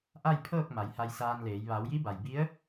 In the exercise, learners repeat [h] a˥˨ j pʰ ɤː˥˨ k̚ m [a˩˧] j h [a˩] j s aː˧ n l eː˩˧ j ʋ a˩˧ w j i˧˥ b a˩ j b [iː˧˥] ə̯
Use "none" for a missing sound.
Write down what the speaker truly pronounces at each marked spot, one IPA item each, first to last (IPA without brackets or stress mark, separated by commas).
ʔ, a˩˧, a˧, i˧˥